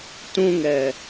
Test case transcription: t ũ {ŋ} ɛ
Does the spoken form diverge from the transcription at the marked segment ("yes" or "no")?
no